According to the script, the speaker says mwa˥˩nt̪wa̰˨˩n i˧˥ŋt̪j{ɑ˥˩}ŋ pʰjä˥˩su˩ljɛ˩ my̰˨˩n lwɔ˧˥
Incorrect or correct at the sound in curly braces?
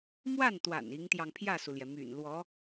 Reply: incorrect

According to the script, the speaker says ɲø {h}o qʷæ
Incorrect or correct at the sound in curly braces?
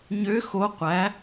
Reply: incorrect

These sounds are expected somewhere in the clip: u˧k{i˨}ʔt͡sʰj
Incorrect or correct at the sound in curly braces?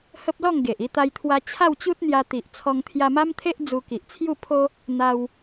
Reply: correct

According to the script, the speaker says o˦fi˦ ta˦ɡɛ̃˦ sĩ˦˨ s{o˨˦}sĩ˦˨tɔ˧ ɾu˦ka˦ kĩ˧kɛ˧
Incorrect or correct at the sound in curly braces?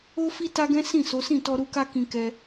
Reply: correct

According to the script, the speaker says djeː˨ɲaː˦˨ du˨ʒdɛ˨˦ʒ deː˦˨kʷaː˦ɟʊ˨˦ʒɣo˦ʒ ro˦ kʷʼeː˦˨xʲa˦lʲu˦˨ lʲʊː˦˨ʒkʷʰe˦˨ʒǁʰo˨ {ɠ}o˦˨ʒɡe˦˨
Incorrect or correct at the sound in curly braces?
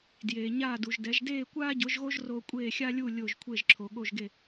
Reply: correct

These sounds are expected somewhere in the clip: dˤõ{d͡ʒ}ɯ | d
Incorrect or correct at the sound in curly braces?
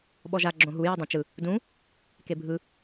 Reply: incorrect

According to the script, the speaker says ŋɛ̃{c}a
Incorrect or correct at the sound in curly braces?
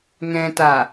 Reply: incorrect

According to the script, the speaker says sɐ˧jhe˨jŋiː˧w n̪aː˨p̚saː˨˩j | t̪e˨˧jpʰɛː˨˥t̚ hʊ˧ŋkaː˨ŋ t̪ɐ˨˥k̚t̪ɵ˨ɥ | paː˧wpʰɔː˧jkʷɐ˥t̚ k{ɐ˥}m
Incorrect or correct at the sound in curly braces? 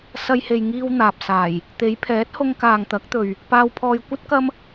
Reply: correct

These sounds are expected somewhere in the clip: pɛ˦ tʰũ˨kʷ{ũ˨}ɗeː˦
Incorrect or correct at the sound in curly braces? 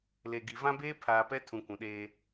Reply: correct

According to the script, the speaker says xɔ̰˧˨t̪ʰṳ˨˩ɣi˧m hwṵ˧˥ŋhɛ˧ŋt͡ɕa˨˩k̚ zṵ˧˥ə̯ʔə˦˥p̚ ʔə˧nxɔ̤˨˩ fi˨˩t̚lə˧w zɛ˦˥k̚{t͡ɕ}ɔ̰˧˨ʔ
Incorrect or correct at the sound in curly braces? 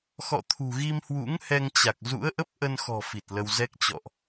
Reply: correct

